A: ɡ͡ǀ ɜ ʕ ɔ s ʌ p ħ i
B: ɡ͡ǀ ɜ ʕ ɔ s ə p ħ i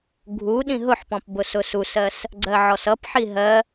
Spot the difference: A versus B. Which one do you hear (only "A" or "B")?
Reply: A